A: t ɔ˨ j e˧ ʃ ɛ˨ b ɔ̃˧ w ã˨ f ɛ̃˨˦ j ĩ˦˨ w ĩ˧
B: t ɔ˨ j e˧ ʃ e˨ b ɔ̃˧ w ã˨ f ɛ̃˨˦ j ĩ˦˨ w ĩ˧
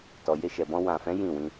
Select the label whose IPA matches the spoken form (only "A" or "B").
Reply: A